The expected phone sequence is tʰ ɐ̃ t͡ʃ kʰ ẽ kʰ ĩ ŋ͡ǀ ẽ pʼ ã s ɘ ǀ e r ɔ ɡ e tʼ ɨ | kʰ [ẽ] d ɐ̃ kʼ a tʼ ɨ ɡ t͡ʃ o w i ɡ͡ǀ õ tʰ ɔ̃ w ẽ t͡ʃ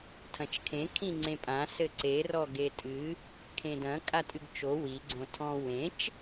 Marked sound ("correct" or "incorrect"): correct